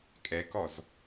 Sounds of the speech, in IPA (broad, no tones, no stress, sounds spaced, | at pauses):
kʼ ɛ k ɔ z